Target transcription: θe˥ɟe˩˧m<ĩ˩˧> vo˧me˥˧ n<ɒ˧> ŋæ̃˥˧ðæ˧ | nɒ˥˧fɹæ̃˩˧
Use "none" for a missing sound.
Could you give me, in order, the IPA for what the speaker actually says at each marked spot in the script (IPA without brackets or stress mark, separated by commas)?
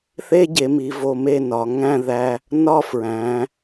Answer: i˩˧, ɒ˩˧